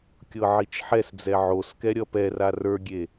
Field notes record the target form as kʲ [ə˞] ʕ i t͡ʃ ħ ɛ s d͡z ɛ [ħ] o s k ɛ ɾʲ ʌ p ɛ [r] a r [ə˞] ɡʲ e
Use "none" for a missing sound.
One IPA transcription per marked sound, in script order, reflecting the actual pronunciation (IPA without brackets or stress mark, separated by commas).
ɤ, ʕ, r, ə˞